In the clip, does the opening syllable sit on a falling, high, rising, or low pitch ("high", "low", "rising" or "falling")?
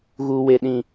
low